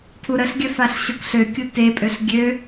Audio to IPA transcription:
tʰ u ɾ ə ɬ ɡʲ œ f a ɬ ɕ o k ɬ ø kʲ u t e pʼ ø ɬ ɡʲ ø

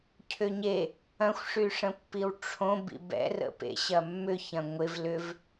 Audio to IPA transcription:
cʰ ʏ ɲ e | ɐ̃ xʷ ʂ y ʂ ə̃ pː i w ʈ͡ʂʰ õ b ḭ b ɛ̰ r ə̰ p ḛ ɕ ɐ mː ʏ ç ɐ̃ ŋʷ ɪ v l ʏ v

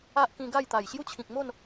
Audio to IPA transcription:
a˦ ʔ k ĩ˧ ɡ a˥˧ j t̪ a˨˩ j ɕ j u˦ t͡ɕʰ ĩ˨ k̚ m o˥˧ n

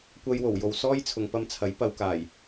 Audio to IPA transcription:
kʷ ɐ˧ j w o˨˩ w j o˨ w s ɔː˥ j t͡sʰ ʊ˨ ŋ p ɐ˧ m t͡sʰ ɐ˨˥ j p ɐ˨˧ w k aː˨˩ j

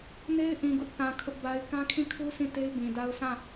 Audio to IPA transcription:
n e˦ ɪ̯ ʔ ĩ˨ ɡ ʊ˦ ʔ θ ã˨ kʰ ʊ˦ ʔ b a˦ ɪ̯ k ã˦ kʰ ĩ˦˨ kʰ u˦ sʰ ĩ˦˨ t e˦ ɪ̯ b ĩ˨ d a˦ ʊ̯ s ã˦˨

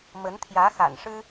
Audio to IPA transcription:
m ə˧˥ n t̪ʰ j ä˧˥ x a̰˨˩ n ʂ ɻ̩˥

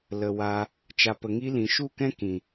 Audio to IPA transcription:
l ə˨ w a˧ | t͡ʃ a˨ p ə˨ ŋ i˧ l ĩ˨ ʃ u˦˨ k ɛ̃˦ k ĩ˨

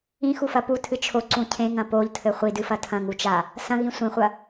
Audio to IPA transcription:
ĩ x u f ɐ p u tʰ ɨ t͡ʃʰ o ǀ ũ cʰ ẽ ŋ ɐ̃ p o ʎ tʰ ɘ χʷ i d ɨ f ɐ tʰ ɐ̃ ŋ u t͡ʃ a | s ɐ̃ ɣ ĩ sʷ ĩ χʷ ɐ

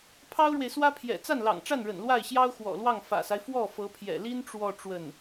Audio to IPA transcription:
pʰ ɑ˥ ʊ̯ ɻ w e˨ ɪ̯ s w ä˥ pʰ j ɛ̰˨˩ t͡s a˥˩ n l ɑ̰˨˩ ŋ ʈ͡ʂ a˥˩ n ɻ ə̰˨˩ n l w a˥˩ ɪ̯ ɕ j ɑ˥ ʊ̯ x w ɔ̰˨˩ l w ɑ˥˩ ŋ f ä̰˨˩ s a˦ ɪ̯ f w ɔ˥˩ f ɤ˧˥ pʰ j ɛ̰˨˩ l i˥ n ʈ͡ʂ w ɔ˥˧ ʈ͡ʂ w ə˥˩ n

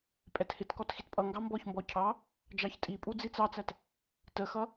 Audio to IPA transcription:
pʼ ɛ t h ɪ t k ɔ t x i t pʼ ʌ ŋ ɡ ɑ m b ɔ ç m b ɔ cʰ ɑ | d͡ʒ ɑ ç tʼ i pʼ u d͡z i t͡s ɑ t͡s æ t | t ə x ʌ

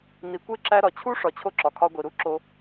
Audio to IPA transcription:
n i˩ kʷ e˥ ǁ æ˦ ɾ ɒ˩ t͡ɕʰ u˥ ʂ ɒ˨ t͡ɕʰ o˥ ǁ ɒ˩ kʰ ɒ˦ ɡʷ i˩ ɾ u˥ ǁ o˦

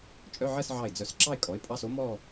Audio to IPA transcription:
t͡ʃʼ œ˧˥˧ ʕ ɜ˥˧ s ʕ ɑ˧˩ ɪ̯ d͡z œ˧˩ s ǁ ɑ˥˧ ɪ̯ kʼ ɔ˩˥ ɪ̯ pʼ ɑ˧˥˧ s o˧˥ m ɔ˥˧

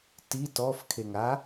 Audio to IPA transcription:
t i t ɔ f kʰ e ŋ a

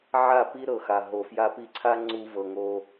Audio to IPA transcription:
ʕ a˦˨ p i˦ ɾ ɤ˨ x a˨ ɦ o˨ f j a˧ p i˧ ǀʰ a˦ ŋ͡ǀ u˧ v ɤ˨ ŋ o˧

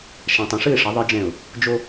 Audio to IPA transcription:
ʃ ã˨ tˤ ɛ̃˨ ʂ ɨ˦˨ ɪ̯ ʂ ɐ˨˦ ðˤ ɨ˦ d͡ʒ ɛ̃˦˨ ʊ̯ | d͡ʒ o˦

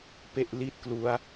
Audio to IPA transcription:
p e˥˩ ʔ l i˥˩ t̚ k l u˦˥ a̯

